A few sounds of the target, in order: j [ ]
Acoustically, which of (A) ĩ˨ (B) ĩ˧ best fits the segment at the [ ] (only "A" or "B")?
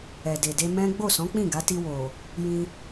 B